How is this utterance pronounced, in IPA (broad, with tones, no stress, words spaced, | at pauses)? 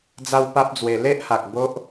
d͡za˦wpa˦p̚d͡zwe˧ le˦ʔha˨k̚ bo˦ʔ